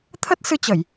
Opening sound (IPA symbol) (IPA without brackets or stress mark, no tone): t̪ʰ